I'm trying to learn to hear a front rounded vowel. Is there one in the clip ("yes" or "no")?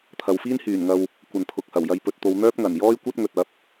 yes